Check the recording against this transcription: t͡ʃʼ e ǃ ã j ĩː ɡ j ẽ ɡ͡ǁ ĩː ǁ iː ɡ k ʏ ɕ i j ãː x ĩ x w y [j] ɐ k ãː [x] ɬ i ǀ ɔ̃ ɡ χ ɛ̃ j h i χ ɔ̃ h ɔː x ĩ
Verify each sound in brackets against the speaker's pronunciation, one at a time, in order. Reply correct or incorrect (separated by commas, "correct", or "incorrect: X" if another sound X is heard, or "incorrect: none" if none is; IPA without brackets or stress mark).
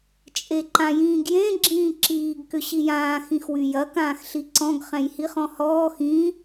correct, correct